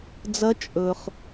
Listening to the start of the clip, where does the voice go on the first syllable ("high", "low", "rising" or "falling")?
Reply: rising